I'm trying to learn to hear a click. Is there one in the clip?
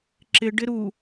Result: yes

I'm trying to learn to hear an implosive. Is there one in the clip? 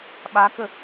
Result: yes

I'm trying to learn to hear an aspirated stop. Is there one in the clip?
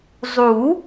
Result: no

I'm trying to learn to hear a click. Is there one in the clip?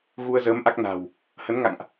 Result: no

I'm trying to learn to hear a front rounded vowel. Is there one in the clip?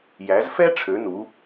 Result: yes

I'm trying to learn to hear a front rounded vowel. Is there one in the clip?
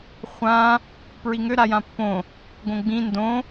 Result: yes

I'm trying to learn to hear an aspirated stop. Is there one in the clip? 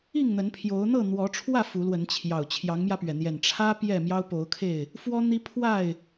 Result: yes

